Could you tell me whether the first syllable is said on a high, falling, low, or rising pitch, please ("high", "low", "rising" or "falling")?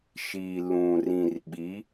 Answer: low